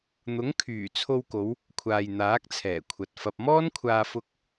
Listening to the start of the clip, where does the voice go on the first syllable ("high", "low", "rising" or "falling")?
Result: rising